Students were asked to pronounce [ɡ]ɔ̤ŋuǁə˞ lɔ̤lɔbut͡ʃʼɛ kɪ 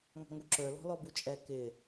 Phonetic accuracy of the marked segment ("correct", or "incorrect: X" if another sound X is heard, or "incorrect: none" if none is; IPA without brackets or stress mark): incorrect: ŋ